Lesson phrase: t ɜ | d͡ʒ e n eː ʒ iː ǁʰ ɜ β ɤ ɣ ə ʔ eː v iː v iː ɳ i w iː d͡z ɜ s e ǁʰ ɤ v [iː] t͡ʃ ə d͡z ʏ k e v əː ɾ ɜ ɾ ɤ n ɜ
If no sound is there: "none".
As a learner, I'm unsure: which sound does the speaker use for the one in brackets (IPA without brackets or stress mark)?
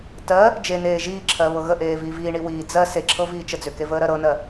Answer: iː